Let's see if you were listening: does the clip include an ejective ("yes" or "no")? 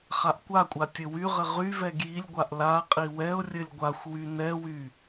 yes